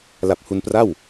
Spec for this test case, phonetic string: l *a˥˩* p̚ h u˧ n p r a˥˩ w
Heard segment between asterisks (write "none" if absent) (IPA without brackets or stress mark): a˨˩